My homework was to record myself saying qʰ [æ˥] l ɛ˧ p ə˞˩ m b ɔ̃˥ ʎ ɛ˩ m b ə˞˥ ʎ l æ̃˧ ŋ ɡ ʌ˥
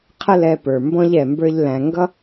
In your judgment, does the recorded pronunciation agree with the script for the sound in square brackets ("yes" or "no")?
no